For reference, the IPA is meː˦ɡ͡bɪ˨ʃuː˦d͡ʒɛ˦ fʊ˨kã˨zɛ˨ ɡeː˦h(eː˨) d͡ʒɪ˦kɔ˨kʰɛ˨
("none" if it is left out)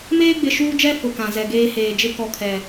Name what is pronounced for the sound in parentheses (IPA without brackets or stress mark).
eː˨